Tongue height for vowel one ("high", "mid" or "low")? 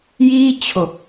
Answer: high